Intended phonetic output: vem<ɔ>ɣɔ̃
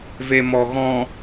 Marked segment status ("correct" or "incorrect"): correct